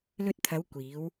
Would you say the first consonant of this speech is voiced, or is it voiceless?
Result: voiced